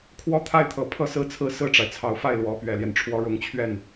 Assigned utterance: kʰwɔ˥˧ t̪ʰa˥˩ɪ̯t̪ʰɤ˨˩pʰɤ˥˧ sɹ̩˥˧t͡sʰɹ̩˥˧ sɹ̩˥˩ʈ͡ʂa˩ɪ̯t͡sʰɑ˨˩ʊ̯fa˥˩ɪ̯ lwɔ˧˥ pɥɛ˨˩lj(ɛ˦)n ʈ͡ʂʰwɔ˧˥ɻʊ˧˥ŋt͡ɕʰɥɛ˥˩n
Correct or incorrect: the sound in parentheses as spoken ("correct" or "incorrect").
correct